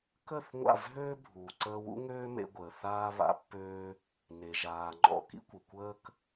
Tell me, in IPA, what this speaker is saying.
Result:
k ə˦˨ θ ŋʷ a̰˦˨ v ɦ øː˦ bʱ uː˨ ǀ əː˧ w ṵ˦ ŋ øː˦ m ḛ˧ ɡʷ əː˨ θ aː˧ β a̰˧ pː øː˧ | n e˨ ʒ aː˨ ŋ͡ǃ ɔ̰˧ k ḭ˦ kʷ ə˨ kʷ əː˦ k

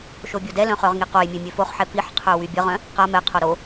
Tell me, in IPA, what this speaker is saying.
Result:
ʃ o bʲ o d ɛ l œ̃ χ œ ʁ ŋ i q o j mʲ e mʲ ø f o χ ħ ɛ p i ħ qʰ œ w y bʲ ə ʁ œ̃ | q a m ɛ qʰ o ɾ o

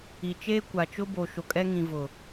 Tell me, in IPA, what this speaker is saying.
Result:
i˨ t͡ʃ eː˦ kʷ a˨ t͡ʃ ʊ˦ b o˨ ʃ o˨ kʼ ɛ˦ ŋ ĩ˨ v ʊ˨

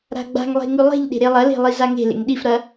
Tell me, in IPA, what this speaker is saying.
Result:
ɾ a̤ ɡ͡b a̤ ŋ lˠ e̤ ŋ ʉ lˠ e̤ ʎ ɗ e̤ ɾ e lˠ ɐ l e̤ lˠ i z a ŋ e̤ l ḛ ŋ ɗ i f ɾ ɐ

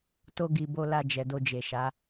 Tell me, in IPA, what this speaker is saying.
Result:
t o˧ ɡ i˨ b o˧ l a˧ d͡ʒ ɛ˨ d o˧ d͡ʒ e˨ ʃ a˨˦

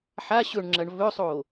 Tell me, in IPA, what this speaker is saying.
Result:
ħ a ɕ ɵ ɳ ŋ͡ǁ ɐ ɳ v ɵ sˤ o

